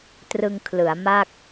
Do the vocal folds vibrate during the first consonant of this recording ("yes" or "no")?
no